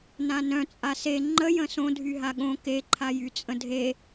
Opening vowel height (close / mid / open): open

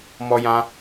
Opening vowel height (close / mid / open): mid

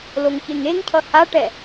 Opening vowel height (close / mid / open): mid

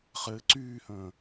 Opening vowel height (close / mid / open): mid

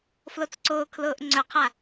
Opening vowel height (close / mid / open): mid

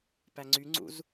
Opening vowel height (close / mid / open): open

